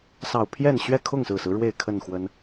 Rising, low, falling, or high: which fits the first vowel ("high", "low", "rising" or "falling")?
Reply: low